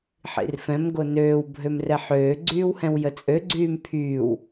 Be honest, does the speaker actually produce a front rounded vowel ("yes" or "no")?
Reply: yes